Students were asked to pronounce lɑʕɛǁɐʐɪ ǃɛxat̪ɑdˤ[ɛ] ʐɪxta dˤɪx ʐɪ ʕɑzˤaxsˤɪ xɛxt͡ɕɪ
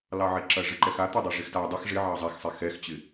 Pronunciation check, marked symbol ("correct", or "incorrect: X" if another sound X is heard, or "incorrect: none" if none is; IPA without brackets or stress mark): correct